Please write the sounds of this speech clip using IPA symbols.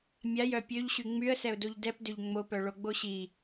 mʲajœ pʲøʎɕy ŋ͡myə̯sɛʊ̯doʎ dɛpdøʎ ŋ͡mopœ ɭoɡ͡boɕi

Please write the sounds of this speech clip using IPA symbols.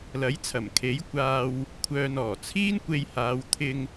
lɐ˨˥jt͡sʰɐ˨˩mkʰe˨˥j kʷaː˨w | kʷʰœː˧n ɔː˨˩t͡sʰiː˥nkʷe˧j haː˨˧w t̪ʰɪ˧ŋ

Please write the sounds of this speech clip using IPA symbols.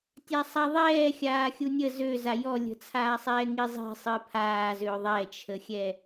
tʲasˤaðˤɛː xʲaːxʲunʲə zøza jɔlʲə̤t͡sʰaːsˤɛː ŋizˤi̤ sˤɨpʰaːzø ðˤɛt͡ʃʰəxʲɛ

